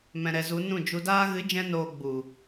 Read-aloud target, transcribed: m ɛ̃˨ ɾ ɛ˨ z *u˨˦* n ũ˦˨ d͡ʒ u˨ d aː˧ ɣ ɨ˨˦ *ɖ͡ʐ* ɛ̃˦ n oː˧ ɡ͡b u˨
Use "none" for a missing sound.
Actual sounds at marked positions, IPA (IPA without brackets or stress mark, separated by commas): u˨˦, d͡ʒ